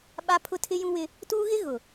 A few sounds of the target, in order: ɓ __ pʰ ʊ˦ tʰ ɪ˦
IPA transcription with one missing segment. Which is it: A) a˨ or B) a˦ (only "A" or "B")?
B